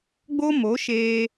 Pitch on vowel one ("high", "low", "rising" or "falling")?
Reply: high